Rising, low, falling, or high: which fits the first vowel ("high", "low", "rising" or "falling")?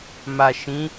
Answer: low